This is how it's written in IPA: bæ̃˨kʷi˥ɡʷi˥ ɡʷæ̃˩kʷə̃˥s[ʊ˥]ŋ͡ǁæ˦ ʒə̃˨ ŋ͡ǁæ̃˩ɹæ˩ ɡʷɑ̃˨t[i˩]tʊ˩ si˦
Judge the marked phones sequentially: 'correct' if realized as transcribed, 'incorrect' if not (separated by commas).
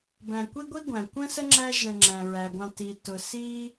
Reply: incorrect, correct